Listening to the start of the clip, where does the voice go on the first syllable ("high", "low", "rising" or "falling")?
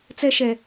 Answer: high